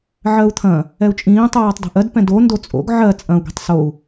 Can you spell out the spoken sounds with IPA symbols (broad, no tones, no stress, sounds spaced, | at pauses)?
ʕ ɜ u̯ t̪ʰ ɐ̃ | ɛ u̯ t͡ʃʼ ĩː tˤ ɜː tˤ d o̤ ʔ ɜ d p ɛ̃ d o n d o t͡sʼ o̰ ɡ ʕ ɜ t͡sʼ ɐ̃ u̯ ɡ i̤ tˤ s o u̯